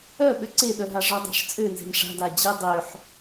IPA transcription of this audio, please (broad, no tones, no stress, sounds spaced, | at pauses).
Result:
œ ɓ ø ǀ e ɗ œ ɦ a ʐ ɔ dˤ a̤ ʂ t͡sʼ ø n z e̤ m ʂ a̤ d a d͡ʑ e dˤ ø ħ